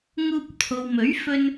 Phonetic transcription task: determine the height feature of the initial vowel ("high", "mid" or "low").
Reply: high